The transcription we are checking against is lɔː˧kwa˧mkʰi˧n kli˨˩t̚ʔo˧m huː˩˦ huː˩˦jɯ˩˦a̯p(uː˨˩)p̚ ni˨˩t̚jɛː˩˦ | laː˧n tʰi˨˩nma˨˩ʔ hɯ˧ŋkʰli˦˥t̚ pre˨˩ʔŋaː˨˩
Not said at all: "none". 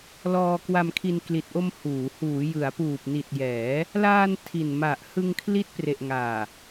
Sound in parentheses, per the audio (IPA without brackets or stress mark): uː˨˩